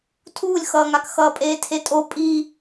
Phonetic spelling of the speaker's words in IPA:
tʰ uː lʲ x ʌː ŋ a k x ʌː pʼ eː tʰ e tʼ o pʼ i

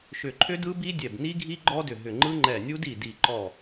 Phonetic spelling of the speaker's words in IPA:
ʃ ʏ˧˩ ǃʰ ʏ˦˥ d ɯ˦˥ b i˦˥ dʲ ɛ˧˩ b n i˦˥ ɡʱ i˦˥ ɡ͡ǃ ɔ˦˥ d ʏ˧˩ ɦ ʏ˧˩ ŋ͡ǃ ɯ˦˥ ŋ͡ǃ ɛ˧˩ nʲ u˦˥ d i˧˩ d i˧˩ ǃ ɔ˧˩

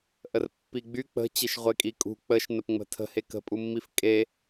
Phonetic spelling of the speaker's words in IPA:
ʔ ə r pː i ɡ͡b y k͡p ə̤ t͡ɕ e ʃ ʁʷ e kʼ i kʼ ṳ k͡p ə ʃ n ə p ŋ͡m ə̤ tʰ ə̤ h e k ə̤ pʼ u mː i f kʼ e

